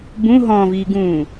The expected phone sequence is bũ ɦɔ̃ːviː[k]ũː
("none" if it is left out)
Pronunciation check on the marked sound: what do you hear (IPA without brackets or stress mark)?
ɡ